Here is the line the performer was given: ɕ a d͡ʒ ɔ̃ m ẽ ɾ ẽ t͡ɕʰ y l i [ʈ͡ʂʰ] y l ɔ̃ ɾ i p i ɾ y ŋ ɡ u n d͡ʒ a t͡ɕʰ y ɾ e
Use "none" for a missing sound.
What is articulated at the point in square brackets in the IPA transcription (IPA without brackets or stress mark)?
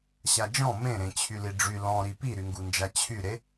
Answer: ɖ͡ʐ